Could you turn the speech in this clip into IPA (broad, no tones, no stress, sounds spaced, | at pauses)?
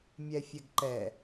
mʲ ɛ fʲ ɛ ɡ ǃ ɛ